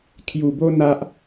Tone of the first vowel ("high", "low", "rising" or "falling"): low